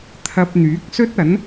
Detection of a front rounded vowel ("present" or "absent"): present